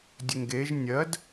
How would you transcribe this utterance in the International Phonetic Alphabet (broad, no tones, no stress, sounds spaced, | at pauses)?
dʲ ɵ ŋ ɡ e ʒ nʲ ɜ d